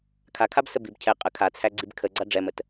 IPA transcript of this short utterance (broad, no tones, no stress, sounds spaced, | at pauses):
kʰ a kʰ a b s ə b i b cʰ ɛ qʼ ə kʰ a t͡sʰ æ ɡ͡ǀ i b kʰ ə ɡ͡ǀ a ɖ͡ʐ ɛ m ə t